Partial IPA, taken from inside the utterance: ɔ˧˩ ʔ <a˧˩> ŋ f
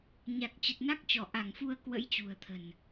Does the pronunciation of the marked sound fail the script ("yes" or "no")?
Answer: no